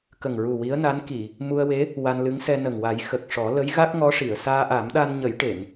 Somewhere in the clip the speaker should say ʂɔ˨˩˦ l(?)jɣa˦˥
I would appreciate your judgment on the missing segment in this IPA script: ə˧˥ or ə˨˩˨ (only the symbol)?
ə˧˥